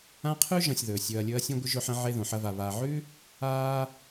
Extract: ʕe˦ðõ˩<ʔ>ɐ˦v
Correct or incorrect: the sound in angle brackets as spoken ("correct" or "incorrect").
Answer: incorrect